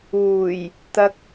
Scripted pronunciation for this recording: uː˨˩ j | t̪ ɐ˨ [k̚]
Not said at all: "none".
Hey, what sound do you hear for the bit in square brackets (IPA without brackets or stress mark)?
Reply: k̚